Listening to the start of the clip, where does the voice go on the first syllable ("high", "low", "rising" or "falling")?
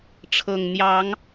low